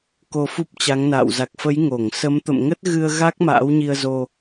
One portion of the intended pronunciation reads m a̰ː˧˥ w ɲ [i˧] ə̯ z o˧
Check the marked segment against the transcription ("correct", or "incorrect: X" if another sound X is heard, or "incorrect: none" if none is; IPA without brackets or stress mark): correct